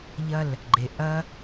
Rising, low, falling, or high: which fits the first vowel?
falling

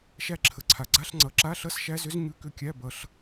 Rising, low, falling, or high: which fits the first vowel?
rising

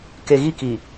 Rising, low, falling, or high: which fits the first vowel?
low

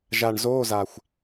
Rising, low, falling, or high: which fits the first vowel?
low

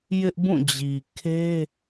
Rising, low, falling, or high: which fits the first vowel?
high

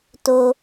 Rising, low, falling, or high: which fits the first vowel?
low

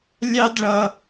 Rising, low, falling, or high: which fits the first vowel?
high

